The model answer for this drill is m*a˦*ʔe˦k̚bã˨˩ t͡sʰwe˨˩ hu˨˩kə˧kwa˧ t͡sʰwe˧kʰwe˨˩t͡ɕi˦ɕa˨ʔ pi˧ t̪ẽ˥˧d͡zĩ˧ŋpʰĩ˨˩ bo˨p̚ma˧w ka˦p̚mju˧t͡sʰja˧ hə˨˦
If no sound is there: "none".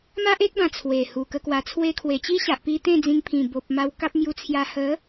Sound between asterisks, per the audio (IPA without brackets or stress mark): a˦